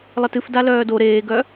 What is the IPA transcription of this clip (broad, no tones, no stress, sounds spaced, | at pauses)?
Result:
lˠ ɘ t ɨ f d a l œː d o ɾ eː ɡ œ